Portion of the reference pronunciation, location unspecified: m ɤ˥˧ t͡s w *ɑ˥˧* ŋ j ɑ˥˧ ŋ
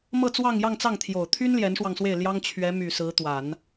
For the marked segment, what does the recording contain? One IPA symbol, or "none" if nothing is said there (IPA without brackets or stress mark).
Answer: ɑ˥˧